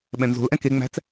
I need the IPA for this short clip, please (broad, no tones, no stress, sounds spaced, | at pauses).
ɓ ɛ̃ n z o̤ l ʔ ɛ̃ k e ŋ͡m æ̤ t͡s